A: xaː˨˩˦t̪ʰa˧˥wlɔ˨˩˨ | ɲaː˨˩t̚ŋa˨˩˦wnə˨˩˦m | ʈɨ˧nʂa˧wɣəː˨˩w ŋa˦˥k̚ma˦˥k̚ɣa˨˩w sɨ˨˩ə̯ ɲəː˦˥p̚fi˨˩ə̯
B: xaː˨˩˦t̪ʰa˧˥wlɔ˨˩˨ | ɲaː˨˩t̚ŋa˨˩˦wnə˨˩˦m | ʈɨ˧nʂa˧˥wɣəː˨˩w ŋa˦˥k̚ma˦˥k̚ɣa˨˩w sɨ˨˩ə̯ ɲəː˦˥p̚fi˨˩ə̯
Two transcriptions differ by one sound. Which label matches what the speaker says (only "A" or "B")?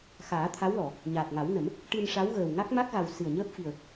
B